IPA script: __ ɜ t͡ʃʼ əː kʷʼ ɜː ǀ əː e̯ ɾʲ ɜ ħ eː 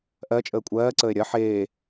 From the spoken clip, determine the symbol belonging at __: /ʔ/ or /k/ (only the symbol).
ʔ